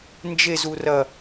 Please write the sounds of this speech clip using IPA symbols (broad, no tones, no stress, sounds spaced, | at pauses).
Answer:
n d͡ʒ e z u r ɐ